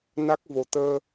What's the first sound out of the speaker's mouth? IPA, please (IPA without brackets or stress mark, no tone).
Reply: n